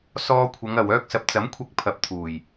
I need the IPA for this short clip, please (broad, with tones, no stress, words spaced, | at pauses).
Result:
sɔː˧kʷʰɐ˨˧ŋɐ˨w œː˧k̚sɐ˨p̚ t͡sɐ˨˥mkʷʰɐ˧k̚ pʰɐ˨˥p̚t̪ʰuː˨˩j